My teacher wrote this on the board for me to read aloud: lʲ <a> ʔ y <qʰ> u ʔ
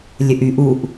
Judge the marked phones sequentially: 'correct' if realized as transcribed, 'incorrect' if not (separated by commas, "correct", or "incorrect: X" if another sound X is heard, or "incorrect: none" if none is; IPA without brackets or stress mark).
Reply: incorrect: ə, incorrect: ʔ